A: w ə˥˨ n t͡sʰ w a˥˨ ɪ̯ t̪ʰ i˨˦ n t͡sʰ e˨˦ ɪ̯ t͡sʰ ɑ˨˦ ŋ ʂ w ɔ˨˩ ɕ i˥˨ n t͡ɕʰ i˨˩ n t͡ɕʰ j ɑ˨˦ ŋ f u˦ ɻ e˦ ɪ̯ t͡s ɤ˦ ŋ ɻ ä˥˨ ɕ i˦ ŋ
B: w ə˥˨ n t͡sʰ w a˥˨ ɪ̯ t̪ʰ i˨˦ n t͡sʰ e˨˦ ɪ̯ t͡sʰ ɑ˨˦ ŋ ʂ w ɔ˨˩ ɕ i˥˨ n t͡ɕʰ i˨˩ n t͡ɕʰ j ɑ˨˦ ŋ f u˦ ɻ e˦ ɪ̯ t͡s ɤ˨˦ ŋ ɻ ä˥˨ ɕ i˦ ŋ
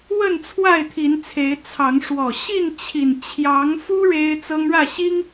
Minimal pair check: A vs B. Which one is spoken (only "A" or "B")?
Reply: A